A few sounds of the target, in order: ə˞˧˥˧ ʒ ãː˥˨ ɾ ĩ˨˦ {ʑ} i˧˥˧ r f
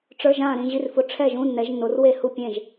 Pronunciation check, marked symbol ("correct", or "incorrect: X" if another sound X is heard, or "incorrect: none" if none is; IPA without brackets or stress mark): correct